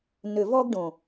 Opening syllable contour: low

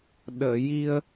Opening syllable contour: low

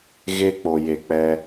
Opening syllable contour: high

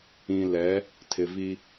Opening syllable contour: low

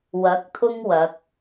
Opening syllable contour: rising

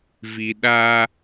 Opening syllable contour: low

